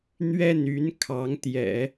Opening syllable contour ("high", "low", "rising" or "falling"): falling